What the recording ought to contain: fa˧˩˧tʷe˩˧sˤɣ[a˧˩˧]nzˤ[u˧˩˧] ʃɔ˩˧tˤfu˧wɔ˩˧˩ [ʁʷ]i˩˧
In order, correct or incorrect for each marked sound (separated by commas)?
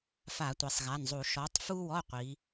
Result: incorrect, correct, incorrect